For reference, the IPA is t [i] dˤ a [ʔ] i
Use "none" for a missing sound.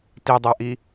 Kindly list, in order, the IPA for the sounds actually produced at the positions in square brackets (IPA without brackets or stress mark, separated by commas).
i, ʔ